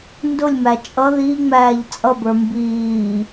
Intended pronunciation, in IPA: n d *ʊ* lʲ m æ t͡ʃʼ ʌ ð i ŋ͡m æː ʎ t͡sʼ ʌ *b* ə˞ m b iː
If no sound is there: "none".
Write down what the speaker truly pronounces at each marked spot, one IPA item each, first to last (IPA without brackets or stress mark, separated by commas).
ʊ, b